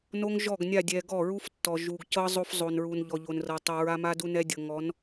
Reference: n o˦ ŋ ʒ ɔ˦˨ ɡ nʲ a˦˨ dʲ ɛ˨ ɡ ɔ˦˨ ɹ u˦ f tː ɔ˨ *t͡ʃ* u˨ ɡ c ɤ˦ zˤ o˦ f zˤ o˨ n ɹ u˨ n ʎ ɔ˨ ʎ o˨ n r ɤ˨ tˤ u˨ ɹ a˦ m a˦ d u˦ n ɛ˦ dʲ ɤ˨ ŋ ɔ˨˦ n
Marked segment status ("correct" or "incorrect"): incorrect